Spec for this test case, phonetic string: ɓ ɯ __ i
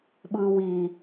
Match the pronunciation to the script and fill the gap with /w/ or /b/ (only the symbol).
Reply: w